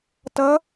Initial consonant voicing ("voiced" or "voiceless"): voiceless